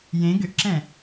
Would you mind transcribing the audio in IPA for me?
j ẽ ɡ ʏ ʔ ǁ ɛ̃

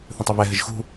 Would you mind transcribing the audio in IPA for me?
θ ə̃ tˤ ɪ β ɛ ɦ ɘ ʒ x ṳ

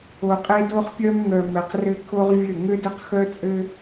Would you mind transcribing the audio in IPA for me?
o˨ qʼ e˦ d o˦ χ pʲ œ˦ m ŋ œ˨ m ɛ˨ q r ɘ˦ kʰ o˦ ʁ vʲ ɘ˦˨ ŋ ø˦ d ɘ˦ q x œ˦ t͡sʼ ɘ˦

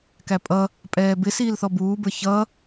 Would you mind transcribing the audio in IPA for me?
k æ pʼ ʌ | pʼ ɛː b ɪ s iː l θ ɔ b uː b ə˞ ç ʌ

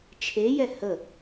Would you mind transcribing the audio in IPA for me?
t͡ʃʰ e j ɛ h ə

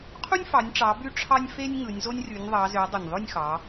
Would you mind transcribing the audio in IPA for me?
qʰ u˥ nʲ f ɑ˨˦ nʲ ʈ͡ʂ ɑ˨˦ b y˥ ʈ͡ʂʰ ɑ˥ nʲ f e˥ nʲ ŋ ɯ˨˦ nʲ z o˥ nʲ r y˨˦ nʲ ðˤ ɑ˨˦ z ø˨˦ dˤ e˨˩ nʲ ðˤ o˥˧ nʲ x ɑ˨˦

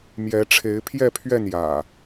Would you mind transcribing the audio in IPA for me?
m j ɛ˨˦ ʈ͡ʂʰ e˨˦ ɪ̯ pʰ j ɛ˥˨ pʰ ɥ ɛ˥˨ n j ä̰˨˩

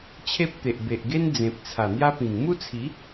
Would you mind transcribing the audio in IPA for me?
t͡ɕʰ e˦ p̚ t̪ e˨ ʔ b e˨ ʔ ɡ e˦ n d͡z ẽ˨ p̚ t͡sʰ a˨˩ n̪ j a˦ p ĩ˨˩ ŋ m u˦ t͡sʰ i˨˦

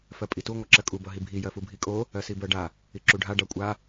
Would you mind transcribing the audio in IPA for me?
f ɜ pʼ i t u ŋʷ ɜ ǁ ɜ kʼ u b ʌ ɦ i bʱ i j ɜ f u bʱ i kʼ o | ɜ s i b ɜ ɖ a | i ǁ u ɖʱ a ɖ a kʷʼ a

